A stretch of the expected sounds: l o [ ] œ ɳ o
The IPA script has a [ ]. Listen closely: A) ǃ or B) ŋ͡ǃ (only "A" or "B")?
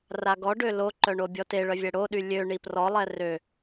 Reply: A